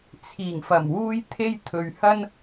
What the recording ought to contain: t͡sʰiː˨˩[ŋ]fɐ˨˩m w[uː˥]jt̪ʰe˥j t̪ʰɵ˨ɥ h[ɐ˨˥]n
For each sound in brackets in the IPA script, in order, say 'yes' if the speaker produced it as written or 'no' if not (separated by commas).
yes, yes, no